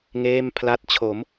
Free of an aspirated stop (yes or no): no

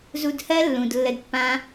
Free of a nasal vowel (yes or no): no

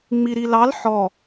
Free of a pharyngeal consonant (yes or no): no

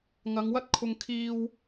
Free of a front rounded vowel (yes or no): yes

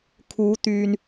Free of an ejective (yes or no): yes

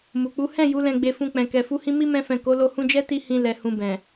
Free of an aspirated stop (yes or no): yes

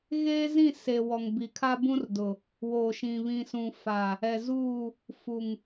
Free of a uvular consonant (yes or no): yes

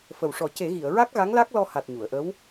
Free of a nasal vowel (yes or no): yes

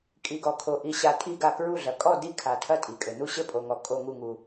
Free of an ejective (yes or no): no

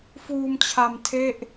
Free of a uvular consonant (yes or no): yes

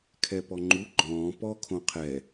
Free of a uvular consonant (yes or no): no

